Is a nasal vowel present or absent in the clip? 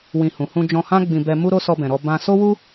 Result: present